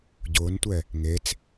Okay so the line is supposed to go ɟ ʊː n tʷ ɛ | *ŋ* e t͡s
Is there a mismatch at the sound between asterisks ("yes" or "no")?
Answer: no